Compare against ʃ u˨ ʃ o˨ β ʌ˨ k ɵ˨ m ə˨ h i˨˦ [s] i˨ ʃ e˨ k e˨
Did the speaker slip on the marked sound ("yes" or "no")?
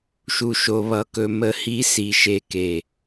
no